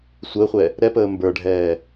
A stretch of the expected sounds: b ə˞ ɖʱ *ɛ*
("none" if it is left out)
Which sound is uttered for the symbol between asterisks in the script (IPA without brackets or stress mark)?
ɛː